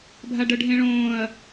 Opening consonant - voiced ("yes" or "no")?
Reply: yes